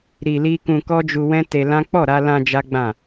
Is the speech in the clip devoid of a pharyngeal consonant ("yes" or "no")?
yes